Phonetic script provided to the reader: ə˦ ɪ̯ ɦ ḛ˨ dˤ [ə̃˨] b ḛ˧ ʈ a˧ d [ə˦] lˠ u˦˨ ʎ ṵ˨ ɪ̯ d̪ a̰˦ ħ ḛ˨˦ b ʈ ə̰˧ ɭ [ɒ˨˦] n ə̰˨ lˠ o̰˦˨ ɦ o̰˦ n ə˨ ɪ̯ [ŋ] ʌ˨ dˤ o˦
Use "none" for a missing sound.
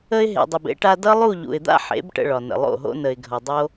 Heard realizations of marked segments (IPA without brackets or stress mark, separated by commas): ə˨, ʌ˦, ɒ˨, ɡʱ